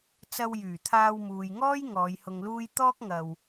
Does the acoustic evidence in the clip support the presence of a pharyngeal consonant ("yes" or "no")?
no